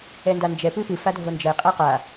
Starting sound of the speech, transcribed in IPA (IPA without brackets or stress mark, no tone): ɛ